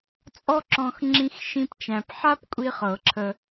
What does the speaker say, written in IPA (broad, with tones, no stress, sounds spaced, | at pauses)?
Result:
t͡sʼ ɔ˥ ǁ ɔ̃˧ x ŋ͡ǁ ĩ˥ x ʃ ĩ˥ p t͡ʃ æ̃˧ p ħ a˥ p kʷʼ i˥ χ ɤ˨˩˦ ǁʰ ə˧